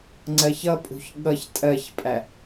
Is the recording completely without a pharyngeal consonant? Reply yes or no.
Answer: yes